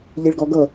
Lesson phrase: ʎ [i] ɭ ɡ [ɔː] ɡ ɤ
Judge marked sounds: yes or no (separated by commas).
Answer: yes, no